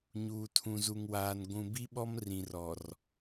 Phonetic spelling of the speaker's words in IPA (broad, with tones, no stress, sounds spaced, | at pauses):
ɲ uː˨ tʰ ũ˨ z u˨ ŋ w aː˨ n ɡʷ ũ˨ b i˦ ɓ ɔ˦ m r ĩ˨ r ɔ˨ r